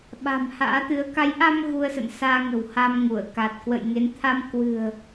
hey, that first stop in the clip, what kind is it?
implosive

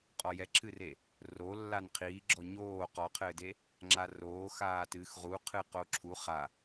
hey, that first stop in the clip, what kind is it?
ejective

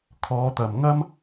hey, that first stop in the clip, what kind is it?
aspirated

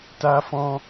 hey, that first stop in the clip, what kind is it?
plain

